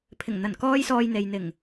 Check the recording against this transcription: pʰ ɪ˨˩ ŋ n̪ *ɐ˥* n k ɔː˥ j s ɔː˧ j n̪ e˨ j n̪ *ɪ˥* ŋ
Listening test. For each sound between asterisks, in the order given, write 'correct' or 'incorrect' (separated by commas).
incorrect, incorrect